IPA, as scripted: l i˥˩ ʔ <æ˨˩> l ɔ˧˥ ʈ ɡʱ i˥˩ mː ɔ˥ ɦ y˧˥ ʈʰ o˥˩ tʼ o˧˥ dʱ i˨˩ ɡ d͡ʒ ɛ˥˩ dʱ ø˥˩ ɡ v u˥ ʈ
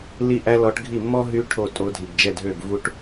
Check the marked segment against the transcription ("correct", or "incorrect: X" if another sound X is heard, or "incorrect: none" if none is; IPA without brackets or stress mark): incorrect: æ˥